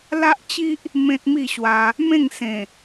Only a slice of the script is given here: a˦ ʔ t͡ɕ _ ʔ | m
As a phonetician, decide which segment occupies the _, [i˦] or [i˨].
i˦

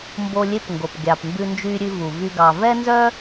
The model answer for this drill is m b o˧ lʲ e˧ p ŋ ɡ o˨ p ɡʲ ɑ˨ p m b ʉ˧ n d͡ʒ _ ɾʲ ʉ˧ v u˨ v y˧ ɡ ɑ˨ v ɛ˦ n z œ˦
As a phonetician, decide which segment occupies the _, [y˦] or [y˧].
y˧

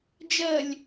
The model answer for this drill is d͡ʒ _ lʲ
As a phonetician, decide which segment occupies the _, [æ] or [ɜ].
ɜ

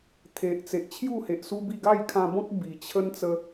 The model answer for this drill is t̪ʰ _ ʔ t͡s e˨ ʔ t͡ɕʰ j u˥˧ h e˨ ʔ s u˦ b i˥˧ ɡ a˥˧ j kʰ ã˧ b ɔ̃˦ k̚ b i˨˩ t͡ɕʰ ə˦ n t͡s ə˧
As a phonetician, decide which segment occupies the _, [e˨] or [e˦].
e˨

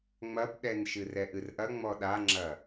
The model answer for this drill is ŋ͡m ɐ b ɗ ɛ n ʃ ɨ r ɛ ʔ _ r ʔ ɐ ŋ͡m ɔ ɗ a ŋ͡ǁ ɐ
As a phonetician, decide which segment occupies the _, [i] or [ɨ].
ɨ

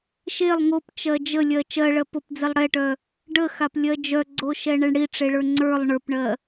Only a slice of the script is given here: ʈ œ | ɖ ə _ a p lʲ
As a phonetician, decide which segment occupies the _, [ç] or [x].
x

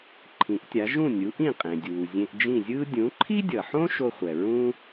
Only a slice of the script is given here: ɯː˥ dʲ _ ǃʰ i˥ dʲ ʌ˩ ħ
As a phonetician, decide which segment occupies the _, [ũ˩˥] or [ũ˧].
ũ˩˥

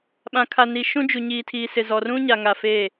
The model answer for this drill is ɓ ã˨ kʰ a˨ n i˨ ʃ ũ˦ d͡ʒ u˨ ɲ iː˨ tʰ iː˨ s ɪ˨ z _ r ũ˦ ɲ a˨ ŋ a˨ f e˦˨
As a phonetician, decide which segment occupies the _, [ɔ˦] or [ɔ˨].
ɔ˨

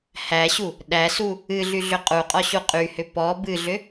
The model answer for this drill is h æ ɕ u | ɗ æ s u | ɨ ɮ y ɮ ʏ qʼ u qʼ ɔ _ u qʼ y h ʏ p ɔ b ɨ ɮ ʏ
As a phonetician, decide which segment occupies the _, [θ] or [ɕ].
ɕ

